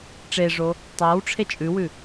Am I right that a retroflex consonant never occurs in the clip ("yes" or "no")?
no